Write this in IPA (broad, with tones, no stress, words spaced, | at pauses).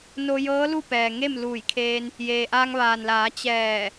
no˧jɤː˧˥ lu˥˨pɛː˩ŋe˥˨m luː˧˩jkʰeː˧n | jeː˩ʔaː˧ŋʋaː˩nlaː˩˧ t͡ɕɛː˧˩